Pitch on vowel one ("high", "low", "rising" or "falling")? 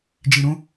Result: low